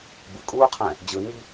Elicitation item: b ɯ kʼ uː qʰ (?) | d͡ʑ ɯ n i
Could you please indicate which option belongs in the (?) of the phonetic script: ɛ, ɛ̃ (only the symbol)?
ɛ̃